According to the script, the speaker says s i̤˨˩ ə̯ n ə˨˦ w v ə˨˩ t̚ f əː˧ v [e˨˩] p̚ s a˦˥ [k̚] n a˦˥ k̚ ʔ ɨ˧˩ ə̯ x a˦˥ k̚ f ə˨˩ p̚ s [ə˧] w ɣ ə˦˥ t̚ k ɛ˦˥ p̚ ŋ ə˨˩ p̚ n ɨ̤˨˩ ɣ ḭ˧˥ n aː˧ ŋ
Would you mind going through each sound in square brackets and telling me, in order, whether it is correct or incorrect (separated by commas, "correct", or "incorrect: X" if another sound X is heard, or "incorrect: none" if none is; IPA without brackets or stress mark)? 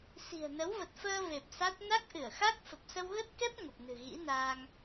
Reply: correct, incorrect: t̚, correct